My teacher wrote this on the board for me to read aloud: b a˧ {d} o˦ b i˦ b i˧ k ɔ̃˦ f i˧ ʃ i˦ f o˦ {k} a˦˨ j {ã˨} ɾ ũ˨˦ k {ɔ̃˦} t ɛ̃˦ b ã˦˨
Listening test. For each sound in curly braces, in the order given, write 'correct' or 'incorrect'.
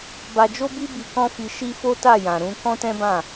incorrect, incorrect, correct, correct

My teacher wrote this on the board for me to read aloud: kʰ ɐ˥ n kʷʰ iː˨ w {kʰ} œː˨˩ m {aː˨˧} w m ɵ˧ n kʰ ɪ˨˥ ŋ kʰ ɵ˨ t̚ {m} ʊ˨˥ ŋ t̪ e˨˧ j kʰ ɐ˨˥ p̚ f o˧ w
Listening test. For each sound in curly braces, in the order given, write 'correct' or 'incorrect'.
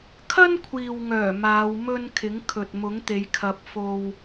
incorrect, correct, correct

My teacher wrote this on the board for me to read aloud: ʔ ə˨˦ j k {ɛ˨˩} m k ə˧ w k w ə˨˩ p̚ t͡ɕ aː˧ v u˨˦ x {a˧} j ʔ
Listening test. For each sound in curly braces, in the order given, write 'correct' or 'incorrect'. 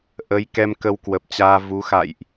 incorrect, incorrect

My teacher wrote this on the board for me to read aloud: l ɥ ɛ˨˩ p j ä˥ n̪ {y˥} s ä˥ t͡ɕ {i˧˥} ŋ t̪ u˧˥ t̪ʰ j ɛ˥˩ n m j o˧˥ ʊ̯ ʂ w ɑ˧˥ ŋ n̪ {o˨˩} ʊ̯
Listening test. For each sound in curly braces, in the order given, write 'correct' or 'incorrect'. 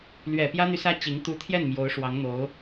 incorrect, correct, incorrect

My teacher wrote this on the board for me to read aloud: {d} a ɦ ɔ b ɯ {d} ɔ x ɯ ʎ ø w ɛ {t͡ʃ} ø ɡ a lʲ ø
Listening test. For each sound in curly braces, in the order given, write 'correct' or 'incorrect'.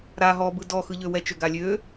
incorrect, correct, correct

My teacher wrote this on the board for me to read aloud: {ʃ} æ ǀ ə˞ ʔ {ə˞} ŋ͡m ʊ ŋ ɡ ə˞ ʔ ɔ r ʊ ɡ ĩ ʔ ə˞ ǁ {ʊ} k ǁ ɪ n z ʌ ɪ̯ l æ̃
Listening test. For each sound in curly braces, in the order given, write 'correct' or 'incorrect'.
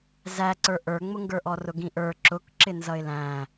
incorrect, correct, correct

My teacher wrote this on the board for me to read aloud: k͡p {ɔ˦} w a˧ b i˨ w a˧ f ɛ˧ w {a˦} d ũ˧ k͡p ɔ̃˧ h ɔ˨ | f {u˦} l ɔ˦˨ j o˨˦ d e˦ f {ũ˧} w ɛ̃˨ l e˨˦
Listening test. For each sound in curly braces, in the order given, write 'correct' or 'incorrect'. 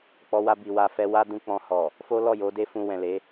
incorrect, correct, incorrect, correct

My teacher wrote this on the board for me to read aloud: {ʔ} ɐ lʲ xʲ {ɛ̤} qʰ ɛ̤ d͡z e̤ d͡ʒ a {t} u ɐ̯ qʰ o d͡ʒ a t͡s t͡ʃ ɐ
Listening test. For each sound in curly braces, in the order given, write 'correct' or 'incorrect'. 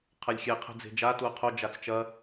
incorrect, incorrect, correct

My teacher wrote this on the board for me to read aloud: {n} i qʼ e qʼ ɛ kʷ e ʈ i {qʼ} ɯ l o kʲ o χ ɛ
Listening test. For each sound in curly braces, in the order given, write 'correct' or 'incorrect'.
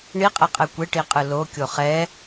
incorrect, correct

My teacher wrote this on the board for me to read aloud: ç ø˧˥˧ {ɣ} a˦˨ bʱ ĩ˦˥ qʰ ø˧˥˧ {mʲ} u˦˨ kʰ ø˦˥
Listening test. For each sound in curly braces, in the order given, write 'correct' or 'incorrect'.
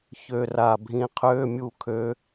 incorrect, correct

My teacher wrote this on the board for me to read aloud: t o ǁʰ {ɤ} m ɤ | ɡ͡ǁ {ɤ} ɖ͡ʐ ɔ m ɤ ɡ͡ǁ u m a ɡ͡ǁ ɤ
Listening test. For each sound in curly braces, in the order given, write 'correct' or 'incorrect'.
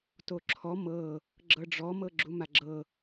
incorrect, correct

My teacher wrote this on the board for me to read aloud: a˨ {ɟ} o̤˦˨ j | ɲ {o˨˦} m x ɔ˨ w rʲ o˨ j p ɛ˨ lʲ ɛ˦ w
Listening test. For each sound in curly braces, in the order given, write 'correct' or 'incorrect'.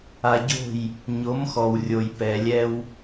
correct, correct

